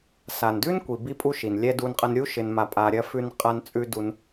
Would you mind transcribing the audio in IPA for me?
s a˨ n d ʉ˦ n kʷ i˨ b i˧ pʼ u˧ ʃ i˨ n lʲ ɛ˧ d u˧ n qʼ ɐ˧ n ɾʲ u˦ ʃ ɪ˧ n m a˧ pʼ a˧ ɾʲ ɐ˦ f ʉ˧ n qʼ a˧ n t͡sʼ ʉ˧ d u˧ n

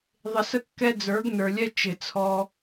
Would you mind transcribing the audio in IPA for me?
ðˤ ɪ˧ s ə˦ kː ɛ˦ d͡z ə˞˨˦ ɡ n ə˞˨ lʲ ɛ˦ t͡ʃ ɪ˨ t͡sʰ ɔ˧

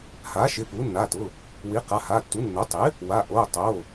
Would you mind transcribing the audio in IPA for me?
h a˩˥ ʃ ɪ˩˧˩ p u˩˥ nː a˩˧˩ t ʊ˩˧˩ | w i˩˥ q a˩˧˩ h a˩˧˩ tː u˩˥ nː o˩˥ tˤ ɪ˩˥ | w a˩˧˩ ʔ o˩˧˩ tˤ o˩˧˩

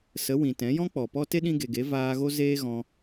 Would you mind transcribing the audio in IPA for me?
s ə˨˦ w ĩ˨ t ɛ̃˨˦ j ɔ̃˦ k͡p ɔ˨ p ɔ˦ t e˦ ɗ ĩ˧ ɡ e˨ ɡ e˨˦ v aː˧ ɣ o˦ z eː˦ ɣ ɔ̃˧

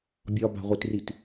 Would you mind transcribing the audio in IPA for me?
bʲ ɒ b a̤ ʁʷ i t r i t

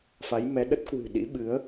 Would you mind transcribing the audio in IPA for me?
f a˨˦ j m ɛ˨˦ ɗ ə˦˥ t̚ k w ɨ̤˨˩ ɗ ḭ˧˥ ɓ ɨ˨˦ ə̯

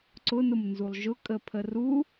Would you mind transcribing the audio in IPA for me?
ǀ ʊ n ʊ m n z u lˠ ʒ ʊ kʼ ə pʰ ə r u

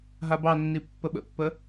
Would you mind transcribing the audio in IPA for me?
ɦ a b ɑ nː i pː ə ɓ ə̰ pː ə

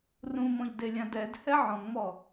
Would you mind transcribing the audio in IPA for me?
r ũ m ɔ̃ ʎ d e lʲ ã d ɛ d h ɛ ʕ ɔ̃ ŋ m ɔ

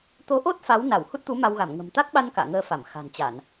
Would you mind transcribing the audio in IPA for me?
t̪ o˨˦ ʔ o˦˥ t̚ f a˨˦ w n a˧˩ w h u˦˥ t̚ t̪ u˨˦ m a˧ w ɣ a˧˩ m ŋ ə̤˨˩ m t̪ a˦˥ k̚ ɓ a˧ n k a̰ː˧˨ ŋ əː˧ f a˧˩ m x a̤˨˩ n t͡ɕ a˧˩˨ n

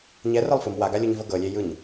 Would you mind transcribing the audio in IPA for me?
ɲ ɛ r ɤ lˠ f ɯ m w a ɡ a lʲ u ɲ v ɤ ɡ ɤ lʲ e j ɯ ɲ

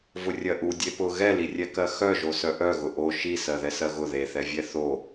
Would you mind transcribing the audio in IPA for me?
v ʊ rʲ ɜ ʔ u dʲ e p ʊ ɣ ɛ l i rʲ ɛ k ɜ x œ ʒ o s œ ʔ œ ɣ ʊ ʔ o ʃ i s ɜ ð ɛ s ɜ ɣ ʊ ð e θ ɛ vʲ ɛ θ o

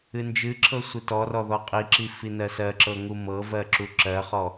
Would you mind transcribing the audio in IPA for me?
ɨ n d͡ʒ ɨ ǁʰ ɤ sʷ i t ɔ r ɔ ð ɔ qʼ i ǁ i f i n ɜ s ɜ ǁ ɤ ŋ u m ɤ v ɜ ǁ u ǁ ɜ χ ɔ

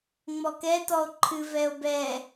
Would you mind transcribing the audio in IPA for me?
ŋ͡m ɔ k ɛ t ɔ o̯ ǃʰ ɨ v ɛ o̯ b ɛ

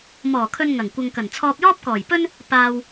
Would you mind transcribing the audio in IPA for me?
m ɔː˨˩ kʰ ɵ˨ n ŋ ɐ˨˩ ŋ kʷ ɐ˨ ŋ k ɐ˨˩ n t͡sʰ ɔː˧ p̚ j ɔː˥ p̚ k ɔː˨˩ j p ɵ˥ n | p aː˨ w

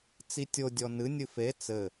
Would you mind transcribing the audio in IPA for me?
t͡s i tʲ o dʲ ɔ n ɨ nʲ ɨ f e t͡s ɘ

